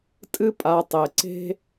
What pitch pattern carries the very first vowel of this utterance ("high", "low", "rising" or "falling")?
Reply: high